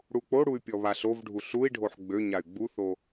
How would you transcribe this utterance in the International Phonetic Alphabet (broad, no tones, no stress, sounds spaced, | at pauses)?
ɽ u k͡p o ɽ u y̯ pʲ ɔ β a ɬ o v ɖʱ u ɬ u i̯ ɖʱ o ħ ɡ͡b ø ɲ a y̯ ɡ͡b u θ o